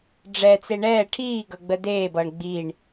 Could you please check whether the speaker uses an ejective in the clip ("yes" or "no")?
no